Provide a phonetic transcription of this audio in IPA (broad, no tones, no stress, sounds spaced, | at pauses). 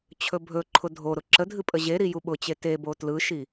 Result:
t͡ɕʰ ɵ bʱ ɵ ǃʰ ʊ dʱ o ɾ ʊ ǁ ə dʱ ɨ pʼ ə ʑ e ɾ i j u ɓ ʊ t͡ɕ e t e b o t l ɯ ʃ i